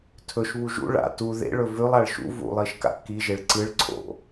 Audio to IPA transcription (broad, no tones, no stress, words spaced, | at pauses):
tʰɵʃβu ʒṵ ɭa̰ tu ðḛ ɭɵvʉlˠ aɭʃṵ vṵlˠiʃka̰ kiʒeɭ ǀɨɭǀʰo̰